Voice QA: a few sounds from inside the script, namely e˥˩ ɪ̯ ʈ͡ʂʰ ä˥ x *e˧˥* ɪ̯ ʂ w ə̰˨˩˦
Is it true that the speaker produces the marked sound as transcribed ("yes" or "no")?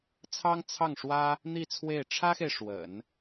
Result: no